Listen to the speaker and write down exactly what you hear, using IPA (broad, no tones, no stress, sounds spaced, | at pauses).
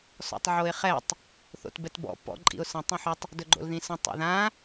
s ɔ̰ tˤ ʕ o ɪ̯ χ ɛ tˤ | θ o̰ t b ɛ t b ɔ̰ p ɔ̰ ǃʼ ḭ ʊ̯ s ə̃ tˤ ĩ ħ o tˤ | d ɵ ɡ͡ǃ o̰ l ð ĩ s ə̃ tˤ o̰ ð ã